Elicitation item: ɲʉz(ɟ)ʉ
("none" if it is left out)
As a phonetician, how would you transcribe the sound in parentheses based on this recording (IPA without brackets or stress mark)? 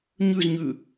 ɲ